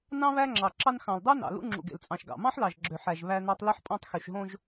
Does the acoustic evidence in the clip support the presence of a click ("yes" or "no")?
yes